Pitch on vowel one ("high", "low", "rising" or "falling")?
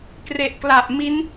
low